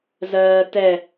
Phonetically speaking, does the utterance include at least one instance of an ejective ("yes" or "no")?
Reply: no